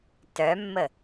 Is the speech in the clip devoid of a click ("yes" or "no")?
yes